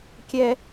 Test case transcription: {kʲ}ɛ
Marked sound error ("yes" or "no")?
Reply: no